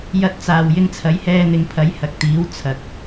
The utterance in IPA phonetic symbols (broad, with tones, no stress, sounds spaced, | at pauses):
j ɐ˧ t̚ t͡s aː˨ w j ɪ˧ ŋ t͡sʰ ɐ˨˥ j h ɛː˧ n̪ ɪ˨ ŋ pʰ ɐ˨˥ j h ɐ˨ k̚ t̪ iː˨˥ w t͡sʰ ɐ˨ k̚